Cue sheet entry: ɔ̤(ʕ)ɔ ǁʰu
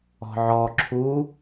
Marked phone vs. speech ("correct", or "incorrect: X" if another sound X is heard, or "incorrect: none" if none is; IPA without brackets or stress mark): correct